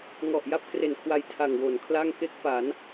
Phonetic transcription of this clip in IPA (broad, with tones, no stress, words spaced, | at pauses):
ŋɔ˨˩ʔja˥˩p̚ kre˨˩nkʰwa˧j tʰa˨˩ŋwo˩˦nkʰla˥˩ŋ ke˦˥k̚ pa˩˦n